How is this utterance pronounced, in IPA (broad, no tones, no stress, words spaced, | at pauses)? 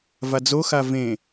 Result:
vad͡zoxa vẽ